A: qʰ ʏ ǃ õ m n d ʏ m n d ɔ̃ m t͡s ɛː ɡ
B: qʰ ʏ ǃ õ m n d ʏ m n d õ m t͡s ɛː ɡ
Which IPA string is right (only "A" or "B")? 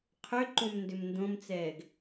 B